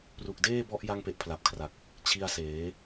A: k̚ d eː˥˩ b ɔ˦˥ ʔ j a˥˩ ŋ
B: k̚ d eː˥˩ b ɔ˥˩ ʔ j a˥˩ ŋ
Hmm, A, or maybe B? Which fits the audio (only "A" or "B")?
A